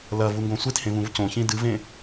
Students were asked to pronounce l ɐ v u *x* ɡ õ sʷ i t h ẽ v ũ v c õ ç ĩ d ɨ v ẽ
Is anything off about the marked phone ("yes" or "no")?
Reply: yes